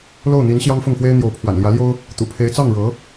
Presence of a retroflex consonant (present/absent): present